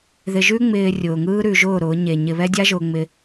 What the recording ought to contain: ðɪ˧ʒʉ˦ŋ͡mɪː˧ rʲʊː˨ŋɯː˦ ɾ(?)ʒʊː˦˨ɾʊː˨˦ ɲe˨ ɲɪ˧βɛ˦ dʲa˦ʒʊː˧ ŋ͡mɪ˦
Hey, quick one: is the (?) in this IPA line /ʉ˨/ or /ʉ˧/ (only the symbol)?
ʉ˧